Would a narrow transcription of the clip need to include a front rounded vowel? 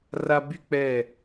yes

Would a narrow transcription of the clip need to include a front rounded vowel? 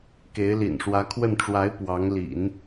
no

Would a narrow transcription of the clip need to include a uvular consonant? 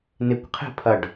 yes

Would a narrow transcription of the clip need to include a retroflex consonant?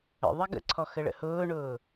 yes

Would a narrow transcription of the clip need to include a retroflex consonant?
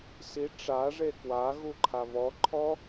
yes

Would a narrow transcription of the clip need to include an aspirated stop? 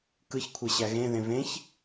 yes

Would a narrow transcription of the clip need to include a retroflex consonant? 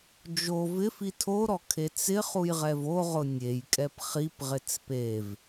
no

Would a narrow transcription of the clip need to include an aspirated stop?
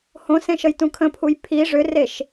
yes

